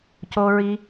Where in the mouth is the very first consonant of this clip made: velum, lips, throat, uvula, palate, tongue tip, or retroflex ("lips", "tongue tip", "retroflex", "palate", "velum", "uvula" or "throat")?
palate